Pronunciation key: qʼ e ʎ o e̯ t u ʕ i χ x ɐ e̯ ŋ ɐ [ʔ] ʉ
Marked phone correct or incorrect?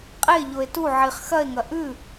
correct